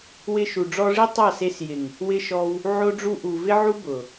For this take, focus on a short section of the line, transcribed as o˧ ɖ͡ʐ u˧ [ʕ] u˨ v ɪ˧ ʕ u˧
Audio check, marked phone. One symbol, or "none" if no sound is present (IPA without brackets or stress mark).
ʔ